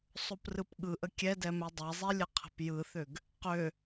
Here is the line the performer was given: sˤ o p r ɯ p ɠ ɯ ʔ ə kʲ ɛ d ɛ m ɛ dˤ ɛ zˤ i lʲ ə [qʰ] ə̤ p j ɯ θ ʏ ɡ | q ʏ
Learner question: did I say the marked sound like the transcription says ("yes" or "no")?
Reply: yes